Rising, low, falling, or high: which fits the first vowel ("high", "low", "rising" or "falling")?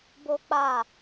high